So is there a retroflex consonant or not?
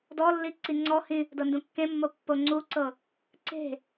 no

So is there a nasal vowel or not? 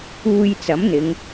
no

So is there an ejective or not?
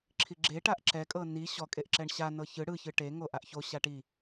yes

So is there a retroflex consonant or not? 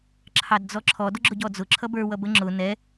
no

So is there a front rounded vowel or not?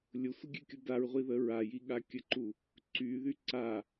yes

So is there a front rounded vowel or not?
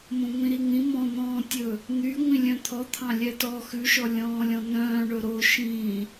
yes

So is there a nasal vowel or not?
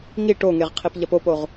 no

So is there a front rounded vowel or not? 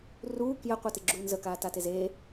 no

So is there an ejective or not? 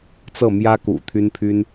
no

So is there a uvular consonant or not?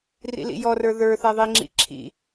no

